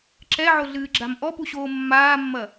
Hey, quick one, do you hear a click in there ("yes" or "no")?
yes